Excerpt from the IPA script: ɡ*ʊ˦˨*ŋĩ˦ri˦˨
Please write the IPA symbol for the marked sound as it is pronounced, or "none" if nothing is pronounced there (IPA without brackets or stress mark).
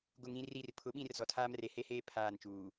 ʊ˦˨